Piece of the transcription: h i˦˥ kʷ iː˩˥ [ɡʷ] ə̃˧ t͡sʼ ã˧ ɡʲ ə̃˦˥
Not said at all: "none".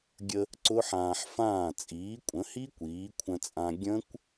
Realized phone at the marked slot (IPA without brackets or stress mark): kʷʰ